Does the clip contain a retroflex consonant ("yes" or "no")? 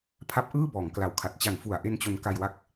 no